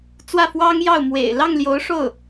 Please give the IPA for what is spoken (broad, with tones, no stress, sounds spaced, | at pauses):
t͡s w ä˥˩ f w ɑ˥ ŋ j ɑ˥˩ ʊ̯ m w ḛ˨˩ ɪ̯ l ɑ˥˩ ŋ l j o˧˥ ʊ̯ ʂ o˥˩ ʊ̯